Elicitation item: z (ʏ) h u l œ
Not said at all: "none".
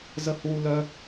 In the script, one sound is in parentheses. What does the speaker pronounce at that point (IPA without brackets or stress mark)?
ə